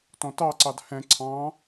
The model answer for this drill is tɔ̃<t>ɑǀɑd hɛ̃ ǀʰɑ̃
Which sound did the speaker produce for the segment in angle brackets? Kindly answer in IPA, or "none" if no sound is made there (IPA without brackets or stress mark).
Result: t